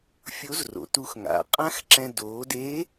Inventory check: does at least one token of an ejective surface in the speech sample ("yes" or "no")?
yes